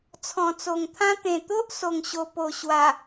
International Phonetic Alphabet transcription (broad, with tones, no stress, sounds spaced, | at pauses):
t͡sʰ ɔ̃˨˩ t͡s o˨˩ ŋ t̪ʰ ã˦ t̪ ẽ˨˩ t̪ o˦ ʔ s o˨˩ ŋ ɕ o˨˩ p o˨˩ ɕ w a˨˩